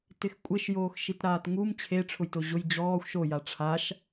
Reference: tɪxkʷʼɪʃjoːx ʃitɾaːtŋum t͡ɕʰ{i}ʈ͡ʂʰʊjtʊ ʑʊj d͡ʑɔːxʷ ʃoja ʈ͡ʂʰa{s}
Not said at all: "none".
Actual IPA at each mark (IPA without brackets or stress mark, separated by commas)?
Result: e, ʃ